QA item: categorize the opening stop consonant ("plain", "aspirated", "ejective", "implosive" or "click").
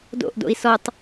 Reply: plain